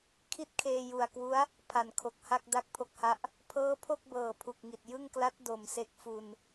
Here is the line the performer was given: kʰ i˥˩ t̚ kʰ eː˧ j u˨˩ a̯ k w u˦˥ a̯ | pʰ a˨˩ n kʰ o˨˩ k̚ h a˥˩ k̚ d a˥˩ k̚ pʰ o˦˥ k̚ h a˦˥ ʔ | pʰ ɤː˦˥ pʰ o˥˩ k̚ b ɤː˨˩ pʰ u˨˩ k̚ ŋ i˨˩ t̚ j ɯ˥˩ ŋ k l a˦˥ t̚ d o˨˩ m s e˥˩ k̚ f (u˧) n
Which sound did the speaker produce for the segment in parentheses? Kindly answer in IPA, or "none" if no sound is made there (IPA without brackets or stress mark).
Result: u˧